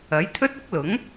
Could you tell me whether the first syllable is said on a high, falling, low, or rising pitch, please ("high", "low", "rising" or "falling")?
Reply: rising